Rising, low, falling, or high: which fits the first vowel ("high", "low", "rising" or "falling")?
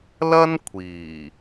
high